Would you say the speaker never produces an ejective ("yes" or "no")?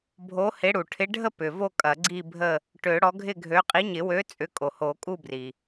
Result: no